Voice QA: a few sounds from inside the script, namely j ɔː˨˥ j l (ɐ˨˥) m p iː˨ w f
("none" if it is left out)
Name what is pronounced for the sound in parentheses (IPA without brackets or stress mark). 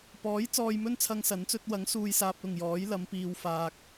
ɐ˨˧